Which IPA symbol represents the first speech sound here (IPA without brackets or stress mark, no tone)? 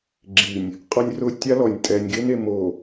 ɡ͡ǁ